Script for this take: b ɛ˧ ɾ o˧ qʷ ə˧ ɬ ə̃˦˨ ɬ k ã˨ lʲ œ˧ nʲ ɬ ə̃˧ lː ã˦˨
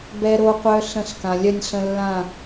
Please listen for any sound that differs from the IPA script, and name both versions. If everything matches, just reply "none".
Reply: ə˧ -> œ˧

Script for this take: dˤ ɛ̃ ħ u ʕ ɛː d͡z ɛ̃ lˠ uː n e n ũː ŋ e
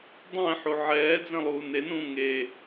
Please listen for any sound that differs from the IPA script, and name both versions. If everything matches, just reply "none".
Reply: none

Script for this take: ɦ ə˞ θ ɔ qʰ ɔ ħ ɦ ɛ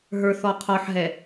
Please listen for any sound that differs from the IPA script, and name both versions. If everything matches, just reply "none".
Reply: none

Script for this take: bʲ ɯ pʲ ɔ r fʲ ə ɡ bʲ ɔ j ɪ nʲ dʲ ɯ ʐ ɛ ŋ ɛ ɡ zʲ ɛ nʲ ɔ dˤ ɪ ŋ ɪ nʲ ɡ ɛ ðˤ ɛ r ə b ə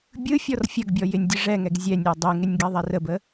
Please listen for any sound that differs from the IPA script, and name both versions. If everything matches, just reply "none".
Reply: pʲ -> fʲ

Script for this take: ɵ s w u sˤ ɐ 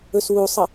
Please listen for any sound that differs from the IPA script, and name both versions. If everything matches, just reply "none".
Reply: none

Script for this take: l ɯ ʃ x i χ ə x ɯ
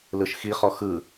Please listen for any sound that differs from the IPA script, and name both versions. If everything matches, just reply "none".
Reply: ə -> ɔ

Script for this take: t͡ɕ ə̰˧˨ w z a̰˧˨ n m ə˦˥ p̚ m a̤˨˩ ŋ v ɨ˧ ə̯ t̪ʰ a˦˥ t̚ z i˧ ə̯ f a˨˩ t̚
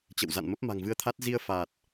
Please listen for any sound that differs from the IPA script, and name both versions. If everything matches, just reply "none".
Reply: none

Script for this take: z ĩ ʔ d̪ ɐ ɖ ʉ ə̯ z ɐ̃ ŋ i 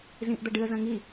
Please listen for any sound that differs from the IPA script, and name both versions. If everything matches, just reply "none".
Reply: ʉ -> ɨ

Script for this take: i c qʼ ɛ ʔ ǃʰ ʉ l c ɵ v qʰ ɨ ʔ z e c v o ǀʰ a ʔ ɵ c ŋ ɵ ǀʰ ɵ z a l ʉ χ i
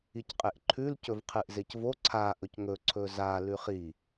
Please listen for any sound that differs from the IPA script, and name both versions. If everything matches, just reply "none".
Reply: ɛ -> e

